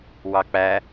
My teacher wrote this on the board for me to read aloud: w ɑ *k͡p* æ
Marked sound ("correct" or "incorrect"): correct